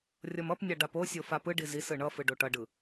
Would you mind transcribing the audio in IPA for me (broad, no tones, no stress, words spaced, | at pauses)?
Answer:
rʲʌmʌpnʲa ɖaposʲo fapɯɖi zis ɯɳʌfɯ ɖoʈʌɖɯ